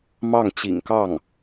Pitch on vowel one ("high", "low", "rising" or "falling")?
falling